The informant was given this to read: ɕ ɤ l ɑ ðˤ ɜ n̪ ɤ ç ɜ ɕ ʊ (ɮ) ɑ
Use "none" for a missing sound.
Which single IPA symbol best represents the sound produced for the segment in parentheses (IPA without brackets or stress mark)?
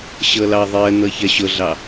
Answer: ɮ